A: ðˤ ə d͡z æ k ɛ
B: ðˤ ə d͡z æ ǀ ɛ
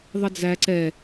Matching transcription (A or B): B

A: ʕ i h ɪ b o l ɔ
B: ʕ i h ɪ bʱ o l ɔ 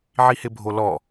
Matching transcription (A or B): B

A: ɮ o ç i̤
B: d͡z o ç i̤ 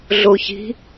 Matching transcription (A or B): A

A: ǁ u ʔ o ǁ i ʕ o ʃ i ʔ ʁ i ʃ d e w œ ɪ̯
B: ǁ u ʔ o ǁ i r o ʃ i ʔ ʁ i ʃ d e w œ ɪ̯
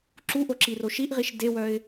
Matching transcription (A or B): B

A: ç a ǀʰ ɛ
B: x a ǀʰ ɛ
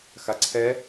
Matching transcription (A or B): B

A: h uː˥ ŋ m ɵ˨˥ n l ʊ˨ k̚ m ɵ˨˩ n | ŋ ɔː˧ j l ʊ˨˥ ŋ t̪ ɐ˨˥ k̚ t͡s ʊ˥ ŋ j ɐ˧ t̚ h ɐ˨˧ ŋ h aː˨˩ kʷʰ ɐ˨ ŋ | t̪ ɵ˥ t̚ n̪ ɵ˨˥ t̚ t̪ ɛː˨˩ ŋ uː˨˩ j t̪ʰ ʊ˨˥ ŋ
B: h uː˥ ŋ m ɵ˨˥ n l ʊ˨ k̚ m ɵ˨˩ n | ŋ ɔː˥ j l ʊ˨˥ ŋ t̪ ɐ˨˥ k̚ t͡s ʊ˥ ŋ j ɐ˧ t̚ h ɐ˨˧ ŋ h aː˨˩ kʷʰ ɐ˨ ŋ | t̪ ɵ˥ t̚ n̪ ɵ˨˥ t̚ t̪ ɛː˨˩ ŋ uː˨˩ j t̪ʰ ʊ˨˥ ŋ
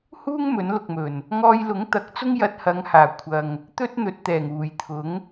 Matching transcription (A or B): A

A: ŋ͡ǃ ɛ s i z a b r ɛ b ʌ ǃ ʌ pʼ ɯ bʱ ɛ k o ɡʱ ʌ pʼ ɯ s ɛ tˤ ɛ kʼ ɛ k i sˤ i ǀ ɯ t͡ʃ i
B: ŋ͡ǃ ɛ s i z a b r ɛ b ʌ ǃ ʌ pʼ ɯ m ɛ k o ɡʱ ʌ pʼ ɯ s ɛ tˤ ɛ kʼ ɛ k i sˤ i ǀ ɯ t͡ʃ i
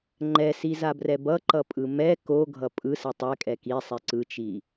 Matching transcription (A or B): B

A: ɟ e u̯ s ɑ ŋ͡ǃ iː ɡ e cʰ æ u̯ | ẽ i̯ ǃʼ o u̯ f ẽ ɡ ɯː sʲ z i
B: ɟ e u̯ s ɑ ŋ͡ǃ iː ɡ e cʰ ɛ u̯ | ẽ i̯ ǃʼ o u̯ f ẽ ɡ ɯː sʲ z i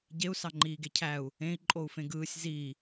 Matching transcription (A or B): A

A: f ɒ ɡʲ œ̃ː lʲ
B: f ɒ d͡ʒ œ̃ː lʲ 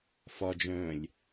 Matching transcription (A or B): B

